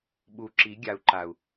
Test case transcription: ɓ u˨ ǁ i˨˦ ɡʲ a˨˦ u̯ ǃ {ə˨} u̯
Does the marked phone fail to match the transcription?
yes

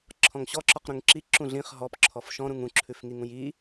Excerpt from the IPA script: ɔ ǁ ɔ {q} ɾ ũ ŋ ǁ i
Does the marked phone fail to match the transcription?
no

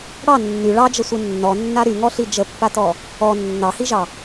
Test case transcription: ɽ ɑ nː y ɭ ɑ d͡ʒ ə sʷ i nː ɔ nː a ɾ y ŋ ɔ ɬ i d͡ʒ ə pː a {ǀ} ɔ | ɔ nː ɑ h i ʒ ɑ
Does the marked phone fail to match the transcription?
yes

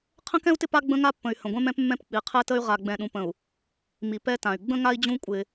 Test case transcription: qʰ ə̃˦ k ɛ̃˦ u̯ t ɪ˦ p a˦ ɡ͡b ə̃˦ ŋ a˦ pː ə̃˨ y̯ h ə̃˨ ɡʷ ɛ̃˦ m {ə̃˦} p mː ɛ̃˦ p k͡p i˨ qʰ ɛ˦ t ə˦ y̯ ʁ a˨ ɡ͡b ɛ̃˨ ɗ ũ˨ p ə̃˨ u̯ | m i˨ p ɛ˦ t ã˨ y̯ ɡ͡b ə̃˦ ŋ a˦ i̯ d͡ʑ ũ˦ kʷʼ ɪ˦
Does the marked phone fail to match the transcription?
yes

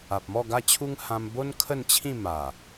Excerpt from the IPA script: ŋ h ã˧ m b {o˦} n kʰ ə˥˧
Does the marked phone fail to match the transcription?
no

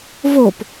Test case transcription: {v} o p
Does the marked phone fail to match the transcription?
no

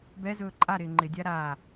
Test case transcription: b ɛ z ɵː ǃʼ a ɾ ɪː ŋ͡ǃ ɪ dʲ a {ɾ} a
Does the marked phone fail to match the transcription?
no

